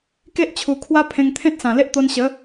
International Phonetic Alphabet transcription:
k e˦ ʔ t͡ɕʰ u˨˩ kʰ w a˦ pʰ ẽ˧ ŋ t̪ʰ ẽ˦ t̚ s ã˨˩ l e˦ ʔ t̪ o˧ n ɕ ə˨˦

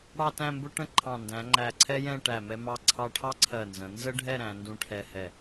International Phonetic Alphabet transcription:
ɽ ɑ˥˧ t æ̃˥˧ m b ʊ˥ ʈ ə̃˥ ǃʰ ɑ̃˧˩ n d æ̃˩˧ ŋ͡ǃ æ˧˩ ǀʰ ɛ˥ j ɛ̃˥˧ ʈ æ˧˩ m ɛ˧ m ɑ˧ ǀʰ ɑ˧ ʈʰ ɑ˥ ǀʰ ɜ˧˩ n z ə̃˩˧ n z ə˥ ɖʱ ɛ˥˧ ɾ æ̃˩˧ n d ũ˧ ʈʰ ɛ˧ h ɛ˧˩

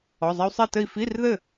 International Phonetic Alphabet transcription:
ɔ˩˧˩ zˤ ɛ˧ u̯ sˤ e˥˨ t ɘ˥˨ i̯ f i˧˥˧ r ð ɘ˥˨

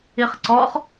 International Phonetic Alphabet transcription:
i χ ǀ ɔ χ

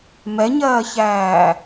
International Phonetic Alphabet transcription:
m ɛ ɲ ɜː ç æː

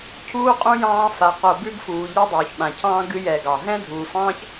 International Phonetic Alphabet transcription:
cʰ uː˥ qʼ ũ˥ j ɑ̃ː˦ f a˨ q o˨ b ʉ˥ ɡ f uː˨ ʎ ɛ˥ dˤ uː˩ ç ɓ ã˩ cʰ ɑ̃ː˦ ɡ ɨ˦ j ɛ˨ ɡ ɑ˩ ɦ ɛ̃˥ dʱ uː˨ f ɑ̃ː˥ ç

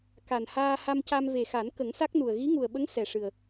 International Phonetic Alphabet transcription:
k a˨˩ n h aː˧ h a˧ m c a˧ m v e˨˩ x a˨˩˦ n k ə˨˩˦ ŋ s a˦˥ k̚ n u˨˩ ə̯ ɣ i˧˥ ŋ u˨˩ ə̯ ɓ ə˧˥ ŋ s ɛ˨˩ ʂ ɨ˨˩ ə̯

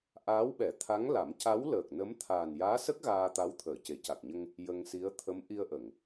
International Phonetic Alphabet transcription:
ʔ aː˧˥ w ɓ ɛ˨˩˦ t̪ʰ a˧˥ ŋ l a˨˩˦ m c a˧˥ w l əː˨˩ k̚ n ə˧˥ m t̪ʰ aː˨˩ n j aː˧˥ s ə˦˥ k̚ ɣ aː˧ t̪ a˧˥ w t̪ʰ əː˨˩˨ c e˨˩˨ c a˨˩ k̚ ɲ ə˧ ŋ | j ə˧ ŋ s i˧˥ ə̯ t̪ʰ ə˧˥ m ʔ i˧ ə̯ ʔ ə˨˩˨ ŋ

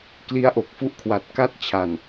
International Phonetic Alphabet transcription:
k l i˦˥ a̯ ʔ o˨˩ k̚ f u˦˥ ʔ kʰ w a˨˩ t̚ k a˥˩ t̚ t͡ɕʰ a˨˩ n

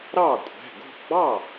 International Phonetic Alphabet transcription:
ɾ ɑ˥˩ kʷʼ ɛ̤˩˧˩ ɡ o̤˥˩ ɡ͡b ɑ˥˩

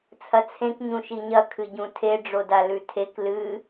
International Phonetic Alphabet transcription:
t͡sʰ ɐ t͡sʰ ẽ k ɲ ũ ʃ i ɲ ɐ kʰ ɨ ɟ ũ tʰ e ɖ͡ʐ o d a l ʉ tʰ e k l ɨ

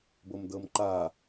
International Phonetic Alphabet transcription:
b o m d ɤ m ǃ a

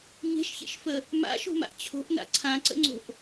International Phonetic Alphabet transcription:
ɲ e̤ ʃ ç ḛ ʃ f ə | m a̰ ʃ o̤ m a̰ ʔ t͡ɕʰ o̤ ʔ n a̰ ǀʰ ã ǀ ə̰ ŋ͡ǀ o̤ ʔ

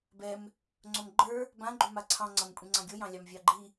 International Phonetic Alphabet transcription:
b ɛ m | ŋ͡ǀ o m ɡ͡ǃ ə˞ | b ã ɡ͡ǃ u m a ǀʰ ɑ̃ ŋ͡ǀ ʌ m kʷʼ ĩ ŋ͡ǀ ɑ̃ ɡʲ o j ɑ̃ lʲ ɑ m vʲ ɑ ɡ͡ǃ i

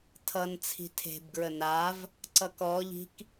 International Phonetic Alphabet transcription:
tʰ ʌ n t͡sʰ i̤ tʰ e̤ b ɡ ɹ ə n a v | ǀ ʌ k ɔ ʎ i̤ k

